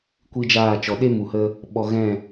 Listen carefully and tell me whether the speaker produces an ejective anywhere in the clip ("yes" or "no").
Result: no